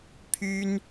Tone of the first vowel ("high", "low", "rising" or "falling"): high